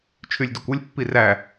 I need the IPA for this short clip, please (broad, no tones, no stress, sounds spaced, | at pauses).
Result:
t͡ʃʰ y lʲ d u kʷ ɯ lʲ pː i r æ